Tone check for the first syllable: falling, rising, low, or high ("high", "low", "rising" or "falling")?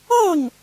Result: falling